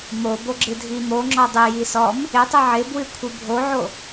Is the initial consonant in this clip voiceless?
no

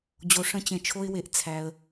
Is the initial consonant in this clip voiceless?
no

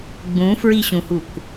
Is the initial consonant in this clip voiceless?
no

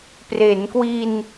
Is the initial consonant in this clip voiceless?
yes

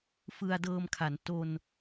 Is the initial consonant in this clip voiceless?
yes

